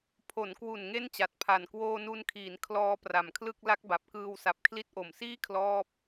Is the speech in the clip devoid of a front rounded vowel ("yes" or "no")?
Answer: yes